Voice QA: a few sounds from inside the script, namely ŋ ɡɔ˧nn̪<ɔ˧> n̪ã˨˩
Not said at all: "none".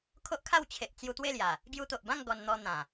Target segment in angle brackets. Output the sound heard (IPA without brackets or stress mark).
ɔ˧